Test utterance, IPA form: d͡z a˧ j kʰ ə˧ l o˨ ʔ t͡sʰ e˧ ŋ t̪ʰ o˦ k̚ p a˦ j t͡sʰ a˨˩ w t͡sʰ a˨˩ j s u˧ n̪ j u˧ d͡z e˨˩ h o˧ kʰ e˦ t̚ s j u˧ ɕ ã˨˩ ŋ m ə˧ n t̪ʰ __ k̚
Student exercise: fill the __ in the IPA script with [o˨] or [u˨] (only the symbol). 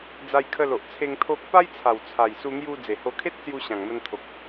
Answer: o˨